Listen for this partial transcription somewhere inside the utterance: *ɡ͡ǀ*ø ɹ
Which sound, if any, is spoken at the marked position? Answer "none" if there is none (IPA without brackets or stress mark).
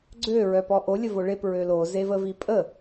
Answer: ɡ͡ǀ